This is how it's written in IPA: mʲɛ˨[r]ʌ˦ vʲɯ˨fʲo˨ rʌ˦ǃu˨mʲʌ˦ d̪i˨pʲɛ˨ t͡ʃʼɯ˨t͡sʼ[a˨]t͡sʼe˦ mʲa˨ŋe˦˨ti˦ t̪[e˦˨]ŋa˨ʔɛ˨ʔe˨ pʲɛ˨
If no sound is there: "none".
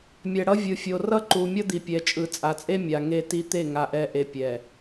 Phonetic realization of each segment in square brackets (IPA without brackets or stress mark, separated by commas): ɽ, a˨, e˦˨